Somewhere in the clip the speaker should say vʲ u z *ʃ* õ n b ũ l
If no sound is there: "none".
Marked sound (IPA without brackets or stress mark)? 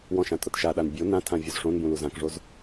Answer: ʂ